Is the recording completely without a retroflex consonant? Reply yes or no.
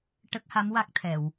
no